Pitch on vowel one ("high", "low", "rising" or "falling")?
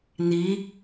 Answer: rising